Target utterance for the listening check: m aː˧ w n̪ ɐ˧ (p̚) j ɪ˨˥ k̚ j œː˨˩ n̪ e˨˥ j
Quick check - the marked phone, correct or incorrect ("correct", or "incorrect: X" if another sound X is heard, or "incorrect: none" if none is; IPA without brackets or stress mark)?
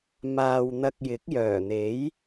incorrect: k̚